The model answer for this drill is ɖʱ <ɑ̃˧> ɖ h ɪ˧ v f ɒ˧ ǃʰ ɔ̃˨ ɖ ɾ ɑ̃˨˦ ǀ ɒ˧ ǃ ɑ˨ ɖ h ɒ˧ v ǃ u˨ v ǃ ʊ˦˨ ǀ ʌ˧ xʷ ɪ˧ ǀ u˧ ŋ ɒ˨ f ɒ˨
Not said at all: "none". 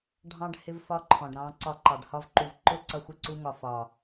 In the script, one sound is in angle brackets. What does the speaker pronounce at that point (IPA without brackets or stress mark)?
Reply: ɑ̃˧